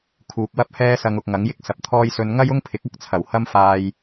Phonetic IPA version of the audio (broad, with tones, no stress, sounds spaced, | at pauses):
kʰ uː˨ k̚ w ɐ˥ p̚ h ɛː˥ s ɐ˧ ŋ ʊ˨ k̚ ŋ ɐ˨˥ ŋ j ɪ˥ k̚ s ɐ˨ p̚ t̪ʰ ɔː˥ j s ɵ˧ n ŋ ɐ˥ j ʊ˥ ŋ pʰ ɪ˨˥ k̚ ɐ˥ k̚ t͡sʰ ɐ˨˩ w h ɐ˥ m f aː˧ j